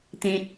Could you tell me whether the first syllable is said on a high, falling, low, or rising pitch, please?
low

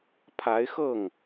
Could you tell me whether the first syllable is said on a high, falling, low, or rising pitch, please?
rising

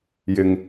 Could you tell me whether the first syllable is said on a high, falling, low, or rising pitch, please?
low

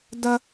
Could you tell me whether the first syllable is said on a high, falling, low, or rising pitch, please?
high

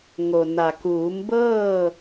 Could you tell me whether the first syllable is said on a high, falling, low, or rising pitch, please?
low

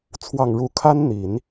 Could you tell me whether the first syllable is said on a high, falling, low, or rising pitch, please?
low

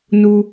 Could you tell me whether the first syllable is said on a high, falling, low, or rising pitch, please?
high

